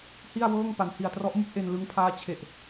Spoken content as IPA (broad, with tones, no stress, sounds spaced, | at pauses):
h i˥˩ a̯ w ɤː˥˩ ŋ p a˩˦ n h i˨˩ a̯ t r ɔ˦˥ ʔ m u˥˩ k̚ ʔ e˧ n l ɯ˦˥ ŋ pʰ aː˦˥ t͡ɕʰ e˨˩ ʔ